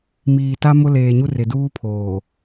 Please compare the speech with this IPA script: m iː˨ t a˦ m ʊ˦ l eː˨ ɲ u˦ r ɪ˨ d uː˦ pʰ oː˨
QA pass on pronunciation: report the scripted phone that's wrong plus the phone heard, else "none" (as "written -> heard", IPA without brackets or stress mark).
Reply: none